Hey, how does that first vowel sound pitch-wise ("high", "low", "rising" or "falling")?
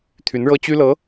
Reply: rising